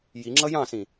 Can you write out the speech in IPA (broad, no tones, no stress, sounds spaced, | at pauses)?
j i ŋ͡ǁ ʌ j ɑ̃ s ĩ